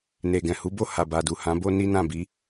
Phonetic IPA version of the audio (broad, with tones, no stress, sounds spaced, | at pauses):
n e˨ ɡ ɛ̃˨ h u˨˦ b o˦˨ h a˨ b a˨ d u˨ h ã˨˦ b o˦ n i˦ n ã˦˨ b i˨˦